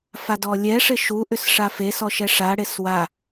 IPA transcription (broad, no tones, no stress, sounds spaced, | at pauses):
f a d ɔ lʲ ɛ ʂ ɪ ʃ u ʔ ʏ s ʂ a f e s ɔ ʃ ɛ ʂ a ɽ e s w a